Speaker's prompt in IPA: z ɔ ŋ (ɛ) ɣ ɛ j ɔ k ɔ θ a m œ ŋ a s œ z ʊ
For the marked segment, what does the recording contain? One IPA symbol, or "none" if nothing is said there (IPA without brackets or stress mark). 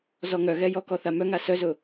œ